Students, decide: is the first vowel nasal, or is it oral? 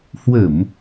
oral